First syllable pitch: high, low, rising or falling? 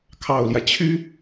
low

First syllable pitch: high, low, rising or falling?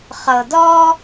low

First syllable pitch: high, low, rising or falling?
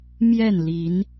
falling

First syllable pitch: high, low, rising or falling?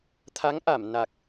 rising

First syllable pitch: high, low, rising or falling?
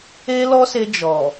high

